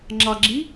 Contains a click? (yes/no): yes